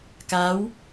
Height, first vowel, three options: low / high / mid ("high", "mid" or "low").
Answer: low